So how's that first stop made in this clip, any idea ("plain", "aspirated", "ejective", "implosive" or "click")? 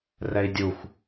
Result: plain